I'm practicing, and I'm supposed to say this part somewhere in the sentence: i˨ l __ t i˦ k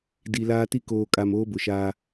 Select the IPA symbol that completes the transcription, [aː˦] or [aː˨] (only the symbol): aː˦